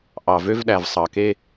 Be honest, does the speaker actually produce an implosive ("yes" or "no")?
yes